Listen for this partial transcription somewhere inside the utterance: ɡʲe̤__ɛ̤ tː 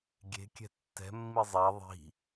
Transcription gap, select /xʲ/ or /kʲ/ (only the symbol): kʲ